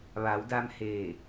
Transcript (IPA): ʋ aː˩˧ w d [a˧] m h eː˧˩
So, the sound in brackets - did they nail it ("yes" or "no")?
yes